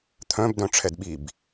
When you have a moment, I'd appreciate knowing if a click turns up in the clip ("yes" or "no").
no